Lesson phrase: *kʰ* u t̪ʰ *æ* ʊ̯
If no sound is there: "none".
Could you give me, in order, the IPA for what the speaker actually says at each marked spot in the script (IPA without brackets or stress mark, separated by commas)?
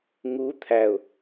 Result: ŋ, æ